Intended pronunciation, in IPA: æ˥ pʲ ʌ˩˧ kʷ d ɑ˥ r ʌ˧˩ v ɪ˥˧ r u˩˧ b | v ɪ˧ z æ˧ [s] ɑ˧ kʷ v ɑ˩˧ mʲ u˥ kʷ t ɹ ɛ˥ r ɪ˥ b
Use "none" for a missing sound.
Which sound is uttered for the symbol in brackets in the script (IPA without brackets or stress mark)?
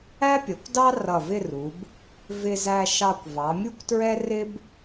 ʃ